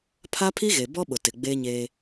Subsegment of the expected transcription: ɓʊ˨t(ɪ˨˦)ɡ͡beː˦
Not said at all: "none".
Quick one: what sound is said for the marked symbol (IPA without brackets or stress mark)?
ɪ˨